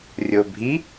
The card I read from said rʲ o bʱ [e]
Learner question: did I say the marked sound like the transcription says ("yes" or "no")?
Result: no